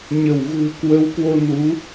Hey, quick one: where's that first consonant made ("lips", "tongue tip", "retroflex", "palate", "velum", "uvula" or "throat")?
palate